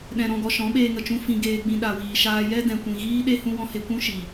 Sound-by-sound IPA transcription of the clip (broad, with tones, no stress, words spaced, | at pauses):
ɗɛ̃˧ɾɔ̃˧ɡɔ˧ ʃɔ̃˨˦ɓeː˧ŋə˨t͡ʃũ˧ fĩ˧ɡeː˧ɡ͡bĩ˧ ɗa˨wiː˨ʃaː˧jɛ˦ dɛ̃˨kʷĩ˨ ɣiː˦ɗe˦ hũ˧wɔ̃˧ he˧kʷũ˦ʃi˨